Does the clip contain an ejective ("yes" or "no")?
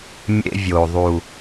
no